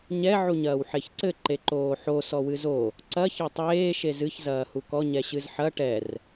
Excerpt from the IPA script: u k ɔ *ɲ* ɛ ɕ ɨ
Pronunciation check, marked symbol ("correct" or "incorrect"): correct